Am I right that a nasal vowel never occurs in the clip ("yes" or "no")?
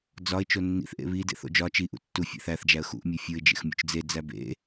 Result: yes